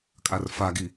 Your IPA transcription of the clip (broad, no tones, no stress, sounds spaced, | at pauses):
kʼ a r f a ɡ i